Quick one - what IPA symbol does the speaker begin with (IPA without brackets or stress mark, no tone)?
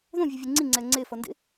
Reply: ð